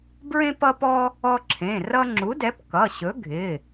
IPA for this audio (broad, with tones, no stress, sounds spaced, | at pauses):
b ɹ ẽ˦ p ʌ˦ p ɔ˦ | ɔ˦ ǁʰ ẽ˩˧˩ r ʌ˦ ŋ͡ǁ u˨˥ d ɛ˨˥ p k ʌ˩˧˩ ɕ ɵ˨˥ ɡʱ ɪ˩˧˩